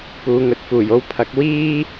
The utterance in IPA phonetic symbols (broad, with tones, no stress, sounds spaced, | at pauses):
p uː˨˧ ŋ ɵ˨ t̚ f uː˨˩ j o˥ w pʰ ɐ˨˥ k̚ w iː˥